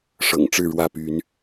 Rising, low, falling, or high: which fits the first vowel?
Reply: low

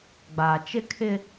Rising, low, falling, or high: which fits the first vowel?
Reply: low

